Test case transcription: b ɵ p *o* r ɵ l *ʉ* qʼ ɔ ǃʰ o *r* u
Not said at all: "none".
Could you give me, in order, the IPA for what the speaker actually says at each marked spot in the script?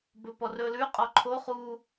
ɔ, ʉ, χ

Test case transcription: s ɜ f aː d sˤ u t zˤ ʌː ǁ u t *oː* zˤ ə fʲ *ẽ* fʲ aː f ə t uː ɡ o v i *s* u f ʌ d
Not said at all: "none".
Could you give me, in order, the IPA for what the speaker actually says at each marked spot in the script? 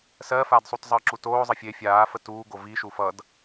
oː, e, ʃ

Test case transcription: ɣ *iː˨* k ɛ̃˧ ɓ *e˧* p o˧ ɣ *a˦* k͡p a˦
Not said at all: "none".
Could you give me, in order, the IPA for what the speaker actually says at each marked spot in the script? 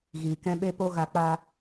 iː˨, e˧, a˧

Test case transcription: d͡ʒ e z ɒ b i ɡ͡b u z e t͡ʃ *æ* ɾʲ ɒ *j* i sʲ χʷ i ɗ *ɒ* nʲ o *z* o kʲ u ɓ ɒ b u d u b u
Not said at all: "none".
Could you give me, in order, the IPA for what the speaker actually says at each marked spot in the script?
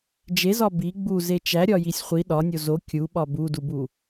æ, j, ɒ, z

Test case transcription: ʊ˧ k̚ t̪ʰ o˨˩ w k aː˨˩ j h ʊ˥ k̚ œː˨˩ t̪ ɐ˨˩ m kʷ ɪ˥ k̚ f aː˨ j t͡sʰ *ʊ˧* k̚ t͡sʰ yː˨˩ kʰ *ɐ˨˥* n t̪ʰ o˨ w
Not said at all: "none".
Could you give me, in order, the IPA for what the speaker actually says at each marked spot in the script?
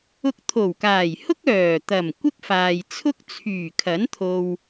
ʊ˥, ɐ˨˥

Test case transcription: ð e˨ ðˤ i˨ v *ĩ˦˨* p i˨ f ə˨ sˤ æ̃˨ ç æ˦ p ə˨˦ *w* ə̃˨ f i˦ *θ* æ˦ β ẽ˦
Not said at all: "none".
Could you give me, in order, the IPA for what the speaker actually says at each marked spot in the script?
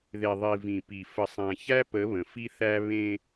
ĩ˨, β, θ

